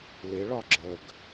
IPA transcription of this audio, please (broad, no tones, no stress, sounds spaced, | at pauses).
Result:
l ɪ ɭ ɒ ɡ͡ǁ ə ɡ